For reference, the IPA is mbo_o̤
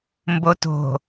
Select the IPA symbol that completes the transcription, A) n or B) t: B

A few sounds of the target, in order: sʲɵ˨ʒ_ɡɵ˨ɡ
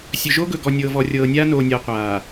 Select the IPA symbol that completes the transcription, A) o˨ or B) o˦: B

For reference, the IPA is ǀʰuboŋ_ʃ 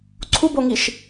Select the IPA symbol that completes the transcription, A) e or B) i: B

